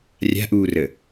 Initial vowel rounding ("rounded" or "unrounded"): unrounded